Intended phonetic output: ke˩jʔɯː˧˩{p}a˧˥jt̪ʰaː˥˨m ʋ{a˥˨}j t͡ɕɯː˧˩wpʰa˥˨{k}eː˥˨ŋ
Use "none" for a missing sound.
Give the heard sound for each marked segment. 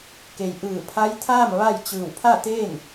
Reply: pʰ, a˥˨, t̪

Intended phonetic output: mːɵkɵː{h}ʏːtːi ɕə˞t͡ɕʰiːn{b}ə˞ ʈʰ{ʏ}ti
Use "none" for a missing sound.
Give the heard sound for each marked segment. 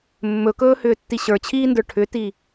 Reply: h, d, ʏ

